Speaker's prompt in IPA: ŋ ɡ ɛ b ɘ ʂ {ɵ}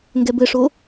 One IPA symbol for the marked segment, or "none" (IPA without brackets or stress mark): o